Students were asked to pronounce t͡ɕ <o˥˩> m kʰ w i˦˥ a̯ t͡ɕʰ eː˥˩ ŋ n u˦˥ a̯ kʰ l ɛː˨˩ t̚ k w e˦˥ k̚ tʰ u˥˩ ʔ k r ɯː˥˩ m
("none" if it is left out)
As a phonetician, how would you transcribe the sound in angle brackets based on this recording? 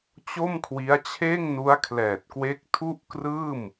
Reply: o˥˩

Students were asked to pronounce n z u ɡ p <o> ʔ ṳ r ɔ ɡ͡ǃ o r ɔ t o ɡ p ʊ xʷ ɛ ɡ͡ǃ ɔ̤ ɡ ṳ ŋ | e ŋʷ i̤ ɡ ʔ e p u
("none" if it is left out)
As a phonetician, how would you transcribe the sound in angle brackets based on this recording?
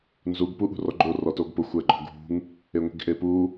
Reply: u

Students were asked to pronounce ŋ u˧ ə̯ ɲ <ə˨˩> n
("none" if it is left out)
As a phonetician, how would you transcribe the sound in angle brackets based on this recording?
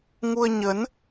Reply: ə˨˦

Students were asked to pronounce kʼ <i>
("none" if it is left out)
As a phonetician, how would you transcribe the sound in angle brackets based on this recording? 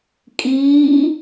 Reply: iː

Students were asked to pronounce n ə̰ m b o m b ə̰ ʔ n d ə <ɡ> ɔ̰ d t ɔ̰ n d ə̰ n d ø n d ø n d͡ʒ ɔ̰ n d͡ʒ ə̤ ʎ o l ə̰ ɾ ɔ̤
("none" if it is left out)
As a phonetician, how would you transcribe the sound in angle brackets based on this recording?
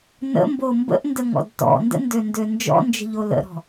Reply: ŋ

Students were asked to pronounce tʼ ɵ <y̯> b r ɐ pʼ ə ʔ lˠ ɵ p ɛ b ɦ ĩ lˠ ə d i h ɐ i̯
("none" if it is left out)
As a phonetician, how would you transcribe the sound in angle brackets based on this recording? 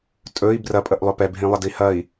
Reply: i̯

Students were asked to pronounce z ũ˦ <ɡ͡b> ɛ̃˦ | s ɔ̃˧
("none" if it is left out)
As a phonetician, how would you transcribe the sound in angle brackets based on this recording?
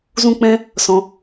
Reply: k͡p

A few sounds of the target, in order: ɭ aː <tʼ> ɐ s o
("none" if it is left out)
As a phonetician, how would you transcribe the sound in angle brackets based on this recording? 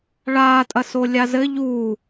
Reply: tʼ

